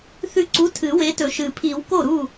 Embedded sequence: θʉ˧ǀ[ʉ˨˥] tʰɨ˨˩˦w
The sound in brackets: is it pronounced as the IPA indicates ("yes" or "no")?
no